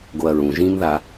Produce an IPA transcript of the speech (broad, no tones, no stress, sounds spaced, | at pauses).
ɡ o ɐ̯ ɹ ũ ʒ ĩ m ð a